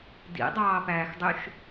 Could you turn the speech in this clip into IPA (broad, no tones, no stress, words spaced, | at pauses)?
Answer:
dḭdˤɑːpæːxdˤyʃ